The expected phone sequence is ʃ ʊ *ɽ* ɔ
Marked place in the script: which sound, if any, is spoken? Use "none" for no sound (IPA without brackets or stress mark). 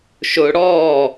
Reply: ɽ